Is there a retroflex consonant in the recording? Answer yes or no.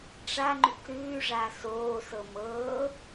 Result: yes